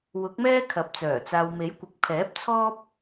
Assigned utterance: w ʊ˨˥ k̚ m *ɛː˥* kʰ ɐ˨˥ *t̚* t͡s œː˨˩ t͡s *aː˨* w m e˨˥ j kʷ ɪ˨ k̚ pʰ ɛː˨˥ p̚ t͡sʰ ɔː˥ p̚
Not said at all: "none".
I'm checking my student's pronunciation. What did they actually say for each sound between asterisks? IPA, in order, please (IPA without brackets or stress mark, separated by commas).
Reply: ɛː˥, p̚, aː˨